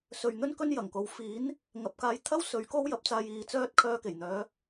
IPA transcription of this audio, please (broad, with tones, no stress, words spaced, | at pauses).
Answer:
sɵ˧ɥ n̪ɵ˥n kɵ˥njɐ˨˩ŋko˨˧w fiː˨˥n | ŋɐ˨p̚kaː˧jt̪ʰɐ˥w sɵ˨˥ɥko˥w jɐ˨˥p̚t͡saː˧jiː˨˧ t͡sœː˥t̚ kʰœː˧ke˨˩jn̪œː˨˧